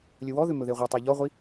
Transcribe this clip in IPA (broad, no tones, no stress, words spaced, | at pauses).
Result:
lʲɵwɔðʏ mɵðeʁʷɛtˤe ʎɔʁʷi